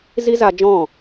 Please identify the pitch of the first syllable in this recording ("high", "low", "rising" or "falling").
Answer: high